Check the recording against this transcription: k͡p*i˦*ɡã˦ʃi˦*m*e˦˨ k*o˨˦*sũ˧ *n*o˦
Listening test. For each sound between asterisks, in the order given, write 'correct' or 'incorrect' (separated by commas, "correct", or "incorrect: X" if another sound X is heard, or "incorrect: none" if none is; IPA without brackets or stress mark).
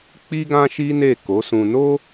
correct, incorrect: n, correct, correct